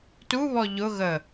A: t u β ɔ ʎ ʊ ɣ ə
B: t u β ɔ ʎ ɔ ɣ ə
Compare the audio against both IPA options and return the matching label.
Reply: A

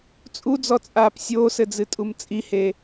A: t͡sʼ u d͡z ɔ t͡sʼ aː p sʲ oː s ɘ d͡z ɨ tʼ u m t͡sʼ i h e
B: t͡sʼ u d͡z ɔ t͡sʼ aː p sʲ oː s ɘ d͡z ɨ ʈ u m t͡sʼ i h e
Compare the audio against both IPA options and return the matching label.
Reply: A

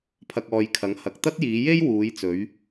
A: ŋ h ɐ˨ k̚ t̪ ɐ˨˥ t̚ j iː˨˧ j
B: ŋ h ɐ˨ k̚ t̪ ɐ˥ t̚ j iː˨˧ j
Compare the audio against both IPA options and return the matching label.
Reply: B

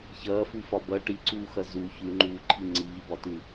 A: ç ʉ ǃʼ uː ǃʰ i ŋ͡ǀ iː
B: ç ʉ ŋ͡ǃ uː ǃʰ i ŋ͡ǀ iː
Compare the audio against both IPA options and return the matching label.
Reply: B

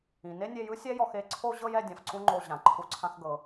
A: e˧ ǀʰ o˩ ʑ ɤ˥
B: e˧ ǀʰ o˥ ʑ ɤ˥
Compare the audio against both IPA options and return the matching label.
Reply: B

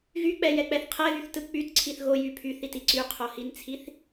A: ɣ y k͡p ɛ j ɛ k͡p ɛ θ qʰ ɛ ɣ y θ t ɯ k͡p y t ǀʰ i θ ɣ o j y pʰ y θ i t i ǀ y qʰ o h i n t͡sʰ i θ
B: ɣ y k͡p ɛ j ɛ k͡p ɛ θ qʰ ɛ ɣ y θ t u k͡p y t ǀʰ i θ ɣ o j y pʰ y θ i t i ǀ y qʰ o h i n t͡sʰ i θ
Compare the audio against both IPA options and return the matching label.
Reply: A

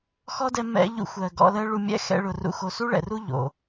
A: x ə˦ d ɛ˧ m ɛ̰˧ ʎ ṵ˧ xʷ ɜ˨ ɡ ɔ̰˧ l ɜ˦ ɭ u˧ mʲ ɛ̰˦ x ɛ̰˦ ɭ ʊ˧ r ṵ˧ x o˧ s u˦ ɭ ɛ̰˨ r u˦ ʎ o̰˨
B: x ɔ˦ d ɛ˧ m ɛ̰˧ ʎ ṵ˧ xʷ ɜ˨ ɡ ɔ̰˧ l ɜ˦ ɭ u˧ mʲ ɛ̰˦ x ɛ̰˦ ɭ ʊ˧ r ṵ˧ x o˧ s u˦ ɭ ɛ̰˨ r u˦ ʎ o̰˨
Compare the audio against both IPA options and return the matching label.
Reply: B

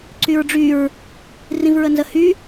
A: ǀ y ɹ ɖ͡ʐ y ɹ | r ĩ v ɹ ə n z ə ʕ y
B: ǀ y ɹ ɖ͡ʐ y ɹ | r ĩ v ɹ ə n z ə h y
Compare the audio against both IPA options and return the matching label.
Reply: B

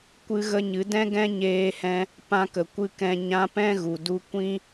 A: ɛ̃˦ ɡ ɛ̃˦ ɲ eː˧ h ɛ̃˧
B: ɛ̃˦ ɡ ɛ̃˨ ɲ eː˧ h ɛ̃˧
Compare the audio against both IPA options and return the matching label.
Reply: A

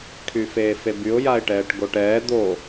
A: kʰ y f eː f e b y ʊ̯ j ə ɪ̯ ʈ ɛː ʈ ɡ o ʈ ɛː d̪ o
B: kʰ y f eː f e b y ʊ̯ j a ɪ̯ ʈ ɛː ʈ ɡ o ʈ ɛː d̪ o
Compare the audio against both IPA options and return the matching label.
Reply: B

